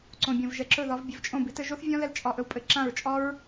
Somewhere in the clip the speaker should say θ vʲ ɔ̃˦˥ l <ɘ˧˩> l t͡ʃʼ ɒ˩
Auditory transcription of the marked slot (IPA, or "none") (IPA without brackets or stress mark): ɛ˧˩